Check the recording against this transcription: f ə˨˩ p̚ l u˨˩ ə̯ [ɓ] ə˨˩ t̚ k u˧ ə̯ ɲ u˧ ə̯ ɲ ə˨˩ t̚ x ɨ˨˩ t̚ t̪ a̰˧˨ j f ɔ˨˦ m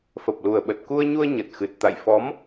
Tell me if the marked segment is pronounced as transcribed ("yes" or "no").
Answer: yes